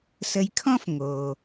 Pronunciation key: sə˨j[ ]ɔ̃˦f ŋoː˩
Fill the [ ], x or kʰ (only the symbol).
kʰ